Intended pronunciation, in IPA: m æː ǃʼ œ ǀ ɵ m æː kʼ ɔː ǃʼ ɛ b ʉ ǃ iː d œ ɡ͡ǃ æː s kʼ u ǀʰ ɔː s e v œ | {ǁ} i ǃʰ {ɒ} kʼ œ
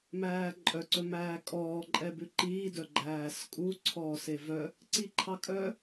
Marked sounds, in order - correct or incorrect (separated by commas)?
incorrect, incorrect